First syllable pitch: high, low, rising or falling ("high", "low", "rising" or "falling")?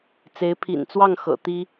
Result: rising